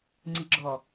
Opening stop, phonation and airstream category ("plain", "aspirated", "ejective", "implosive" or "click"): click